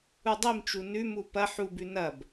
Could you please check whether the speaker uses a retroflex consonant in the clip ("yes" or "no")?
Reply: no